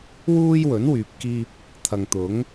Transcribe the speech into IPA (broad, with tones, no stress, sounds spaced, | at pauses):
w uː˥ j w ɵ˨˥ n w yː˨ p̚ k iː˧ p̚ | t̪ʰ ɐ˨ ŋ t̪ ʊ˨˥ ŋ